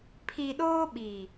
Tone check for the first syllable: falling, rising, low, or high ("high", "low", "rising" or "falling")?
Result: low